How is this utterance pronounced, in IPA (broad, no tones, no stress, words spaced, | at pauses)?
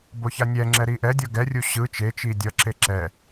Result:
boçanʲɛŋ͡ǁɛ ɾiʔɛdʲʌ ɡɛrʲu ɕɯ t͡ʃet͡ʃi dʲʌǁe ǁɛ